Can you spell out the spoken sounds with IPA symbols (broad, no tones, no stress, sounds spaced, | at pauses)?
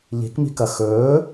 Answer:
ʎ i̤ k m i̤ k ɐ x ɵː